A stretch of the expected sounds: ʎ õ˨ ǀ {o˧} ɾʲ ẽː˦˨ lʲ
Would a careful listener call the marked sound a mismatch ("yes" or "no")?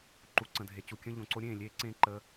no